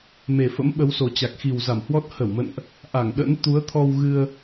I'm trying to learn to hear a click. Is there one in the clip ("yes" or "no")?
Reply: no